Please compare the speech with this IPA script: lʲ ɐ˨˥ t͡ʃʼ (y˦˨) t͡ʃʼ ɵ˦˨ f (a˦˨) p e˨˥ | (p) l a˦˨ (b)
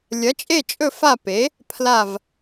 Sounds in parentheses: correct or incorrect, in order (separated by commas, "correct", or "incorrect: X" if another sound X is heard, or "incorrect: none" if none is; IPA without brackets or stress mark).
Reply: incorrect: e˦˨, correct, incorrect: pʰ, incorrect: v